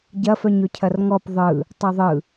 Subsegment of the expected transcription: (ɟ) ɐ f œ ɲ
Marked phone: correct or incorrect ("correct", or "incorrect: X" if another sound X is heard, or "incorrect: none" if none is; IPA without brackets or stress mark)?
correct